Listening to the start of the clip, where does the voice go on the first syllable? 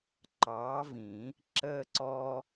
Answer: rising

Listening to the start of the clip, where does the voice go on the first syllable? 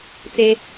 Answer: high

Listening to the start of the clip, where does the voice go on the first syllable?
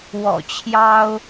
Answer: low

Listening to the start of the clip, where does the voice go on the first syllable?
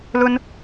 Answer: high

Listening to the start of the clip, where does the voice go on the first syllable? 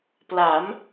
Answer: rising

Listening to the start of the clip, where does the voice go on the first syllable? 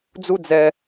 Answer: low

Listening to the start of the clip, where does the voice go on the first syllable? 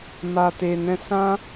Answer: low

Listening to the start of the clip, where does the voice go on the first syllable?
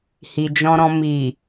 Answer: low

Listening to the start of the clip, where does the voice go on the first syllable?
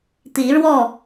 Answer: rising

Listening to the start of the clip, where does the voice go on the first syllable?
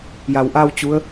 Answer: low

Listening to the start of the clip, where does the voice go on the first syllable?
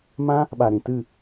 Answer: high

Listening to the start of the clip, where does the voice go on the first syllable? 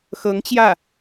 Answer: rising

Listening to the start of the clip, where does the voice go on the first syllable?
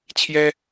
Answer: high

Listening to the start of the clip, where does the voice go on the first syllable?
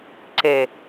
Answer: low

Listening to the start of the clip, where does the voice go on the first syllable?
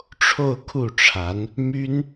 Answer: falling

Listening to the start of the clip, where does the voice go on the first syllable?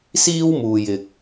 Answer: high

